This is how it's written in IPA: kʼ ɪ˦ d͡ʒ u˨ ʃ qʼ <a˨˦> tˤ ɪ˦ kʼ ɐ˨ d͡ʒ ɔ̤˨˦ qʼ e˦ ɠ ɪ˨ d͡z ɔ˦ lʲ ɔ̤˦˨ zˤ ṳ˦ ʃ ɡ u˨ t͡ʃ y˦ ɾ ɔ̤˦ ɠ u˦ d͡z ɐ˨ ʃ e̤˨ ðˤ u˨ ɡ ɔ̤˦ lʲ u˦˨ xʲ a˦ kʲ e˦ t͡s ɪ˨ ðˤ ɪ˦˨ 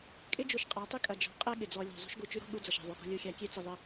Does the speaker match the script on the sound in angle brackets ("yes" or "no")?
yes